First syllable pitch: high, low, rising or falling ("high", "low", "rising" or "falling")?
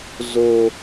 low